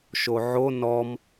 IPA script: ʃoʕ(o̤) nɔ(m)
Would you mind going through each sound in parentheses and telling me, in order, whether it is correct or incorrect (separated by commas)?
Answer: incorrect, correct